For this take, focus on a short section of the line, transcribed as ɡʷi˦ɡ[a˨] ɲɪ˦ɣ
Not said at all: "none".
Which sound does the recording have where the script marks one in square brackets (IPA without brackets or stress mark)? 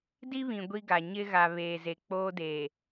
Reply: a˨